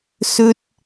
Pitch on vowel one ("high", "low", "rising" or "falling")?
high